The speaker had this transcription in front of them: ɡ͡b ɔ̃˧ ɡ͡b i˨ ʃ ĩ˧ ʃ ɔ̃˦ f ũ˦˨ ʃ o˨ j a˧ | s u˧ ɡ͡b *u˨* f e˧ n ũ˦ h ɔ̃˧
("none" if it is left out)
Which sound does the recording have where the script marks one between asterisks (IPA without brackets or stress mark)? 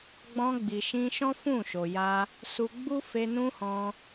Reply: u˦